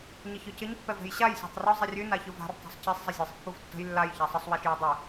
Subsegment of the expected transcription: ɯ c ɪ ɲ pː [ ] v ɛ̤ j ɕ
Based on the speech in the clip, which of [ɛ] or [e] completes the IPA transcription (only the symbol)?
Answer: ɛ